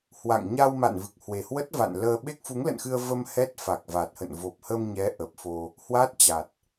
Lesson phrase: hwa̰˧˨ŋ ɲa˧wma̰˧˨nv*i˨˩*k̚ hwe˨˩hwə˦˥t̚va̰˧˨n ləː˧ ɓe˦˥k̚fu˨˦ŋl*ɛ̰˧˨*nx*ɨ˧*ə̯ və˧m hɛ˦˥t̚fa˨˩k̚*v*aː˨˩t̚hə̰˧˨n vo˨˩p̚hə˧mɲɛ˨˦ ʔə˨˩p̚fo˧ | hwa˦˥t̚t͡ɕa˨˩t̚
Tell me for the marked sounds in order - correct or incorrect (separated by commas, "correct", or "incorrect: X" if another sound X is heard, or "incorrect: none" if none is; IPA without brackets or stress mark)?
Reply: incorrect: ɨ˨˩, incorrect: ə̰˧˨, correct, correct